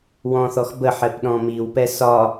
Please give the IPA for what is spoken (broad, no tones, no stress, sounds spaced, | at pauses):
w ɔ̃ θ ɔ x b ə ħ ɛ p ɗ ɔ̃ m i w p ɛ s ɒ